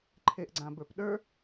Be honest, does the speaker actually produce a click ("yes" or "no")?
yes